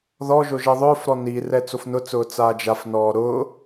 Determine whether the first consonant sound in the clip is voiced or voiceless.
voiced